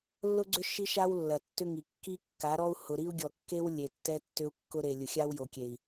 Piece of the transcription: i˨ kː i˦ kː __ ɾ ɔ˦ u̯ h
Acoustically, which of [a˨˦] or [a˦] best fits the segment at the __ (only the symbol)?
a˨˦